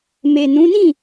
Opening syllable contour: low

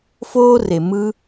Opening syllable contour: high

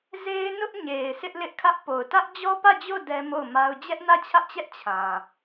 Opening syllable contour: high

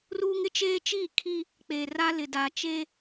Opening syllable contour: high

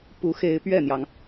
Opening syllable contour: rising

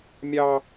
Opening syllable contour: high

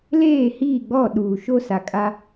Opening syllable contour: falling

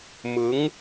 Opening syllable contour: rising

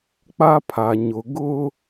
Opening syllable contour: high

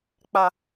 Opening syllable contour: low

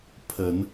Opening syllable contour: low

